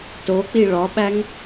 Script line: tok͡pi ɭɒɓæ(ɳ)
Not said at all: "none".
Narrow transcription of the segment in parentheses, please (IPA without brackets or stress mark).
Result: ŋ